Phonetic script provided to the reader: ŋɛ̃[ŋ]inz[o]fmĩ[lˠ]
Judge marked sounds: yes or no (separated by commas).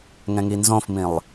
yes, no, yes